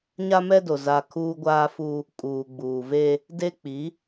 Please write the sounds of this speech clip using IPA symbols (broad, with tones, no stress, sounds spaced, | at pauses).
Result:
ɲ a˦ m ɛ˦ d o˨ z a˨ kʰ uː˦ ɡʷ aː˦ f u˦ | kʼ uː˨ ɡ͡b uː˨ v e˦ | d e˦ k͡p i˨˦